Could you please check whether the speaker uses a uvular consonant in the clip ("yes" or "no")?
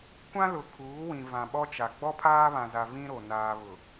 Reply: no